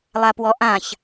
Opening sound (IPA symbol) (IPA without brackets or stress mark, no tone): lˠ